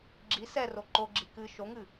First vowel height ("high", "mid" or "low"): high